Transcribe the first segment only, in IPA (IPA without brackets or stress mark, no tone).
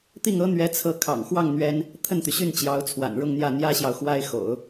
t̪